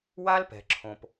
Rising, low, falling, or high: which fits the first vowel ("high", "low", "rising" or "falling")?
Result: high